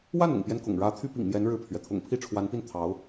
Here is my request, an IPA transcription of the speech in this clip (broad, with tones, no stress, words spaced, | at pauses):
wa˥˩nʊ̰˨˩ŋpjɛ˦n kʊ̰˨˩ŋɻä˧˥ t̪ʰy˥pḭ˨˩ŋmjɛ˧˥n ɻɻ̩˥˩pʰɥɛ˩ t̪ʰʊ̰˨˩ŋpʰi˥˩ ʈ͡ʂʰwa˧˥npi˥˩n t̪ʰɑ˧˥ʊ̯